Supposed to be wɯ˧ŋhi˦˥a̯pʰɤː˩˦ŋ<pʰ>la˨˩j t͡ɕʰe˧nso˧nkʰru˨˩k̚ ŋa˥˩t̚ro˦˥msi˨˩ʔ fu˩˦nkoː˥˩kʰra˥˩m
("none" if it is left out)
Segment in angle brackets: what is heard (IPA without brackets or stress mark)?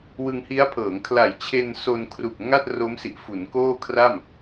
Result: kʰ